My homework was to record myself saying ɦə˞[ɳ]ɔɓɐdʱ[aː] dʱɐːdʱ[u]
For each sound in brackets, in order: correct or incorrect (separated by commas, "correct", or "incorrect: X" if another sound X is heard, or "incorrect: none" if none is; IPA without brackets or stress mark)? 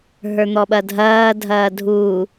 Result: incorrect: n̪, incorrect: ɐː, correct